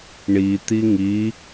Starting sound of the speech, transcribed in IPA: ɳ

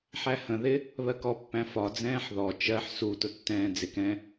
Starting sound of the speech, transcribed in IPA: ħ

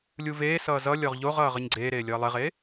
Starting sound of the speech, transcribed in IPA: lʲ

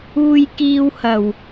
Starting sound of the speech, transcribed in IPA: uː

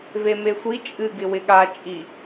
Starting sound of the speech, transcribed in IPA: v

